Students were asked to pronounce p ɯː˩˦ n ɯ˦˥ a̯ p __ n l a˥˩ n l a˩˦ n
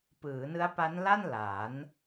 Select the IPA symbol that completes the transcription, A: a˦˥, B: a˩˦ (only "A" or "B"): A